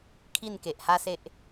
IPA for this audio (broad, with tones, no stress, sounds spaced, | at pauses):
kʰ i˥˧ n k e˨ ʔ h a˦ s e˦ ʔ